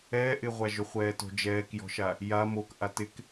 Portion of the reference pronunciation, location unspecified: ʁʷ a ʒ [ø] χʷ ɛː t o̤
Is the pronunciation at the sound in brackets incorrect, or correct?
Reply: correct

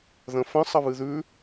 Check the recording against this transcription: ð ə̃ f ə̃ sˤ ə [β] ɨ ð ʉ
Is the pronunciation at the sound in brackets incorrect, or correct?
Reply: correct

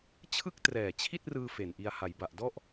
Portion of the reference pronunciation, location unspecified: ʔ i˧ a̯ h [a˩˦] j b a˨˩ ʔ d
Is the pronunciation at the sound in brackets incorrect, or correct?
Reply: correct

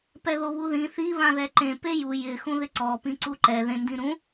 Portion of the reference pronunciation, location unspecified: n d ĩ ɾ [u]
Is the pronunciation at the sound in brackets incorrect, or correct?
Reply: incorrect: ũ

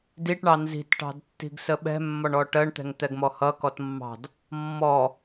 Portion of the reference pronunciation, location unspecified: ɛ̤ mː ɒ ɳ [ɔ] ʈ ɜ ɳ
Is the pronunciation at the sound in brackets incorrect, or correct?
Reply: correct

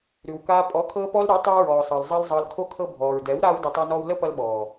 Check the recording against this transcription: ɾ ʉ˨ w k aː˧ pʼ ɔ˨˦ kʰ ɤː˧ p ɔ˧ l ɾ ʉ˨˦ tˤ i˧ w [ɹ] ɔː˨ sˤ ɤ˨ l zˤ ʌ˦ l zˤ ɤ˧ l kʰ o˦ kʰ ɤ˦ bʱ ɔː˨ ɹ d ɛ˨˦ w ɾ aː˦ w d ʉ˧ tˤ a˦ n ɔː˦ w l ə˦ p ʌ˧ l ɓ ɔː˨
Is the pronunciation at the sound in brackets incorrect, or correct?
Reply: correct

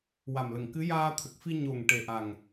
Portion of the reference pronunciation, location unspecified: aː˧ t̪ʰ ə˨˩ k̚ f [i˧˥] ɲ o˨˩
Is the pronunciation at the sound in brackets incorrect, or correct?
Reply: incorrect: i˧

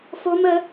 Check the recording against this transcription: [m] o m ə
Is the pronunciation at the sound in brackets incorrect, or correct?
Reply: incorrect: f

